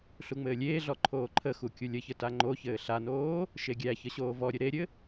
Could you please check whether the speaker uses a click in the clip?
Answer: yes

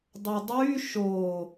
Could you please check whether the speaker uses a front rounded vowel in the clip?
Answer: yes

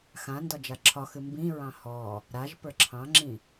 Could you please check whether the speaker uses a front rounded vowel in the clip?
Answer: no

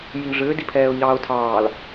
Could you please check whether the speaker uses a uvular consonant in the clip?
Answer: no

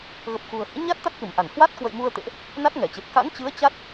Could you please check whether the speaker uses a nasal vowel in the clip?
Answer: no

